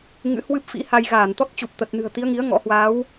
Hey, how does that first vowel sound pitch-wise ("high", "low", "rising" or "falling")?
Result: rising